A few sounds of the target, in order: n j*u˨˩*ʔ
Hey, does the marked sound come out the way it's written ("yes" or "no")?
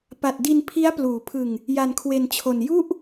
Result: no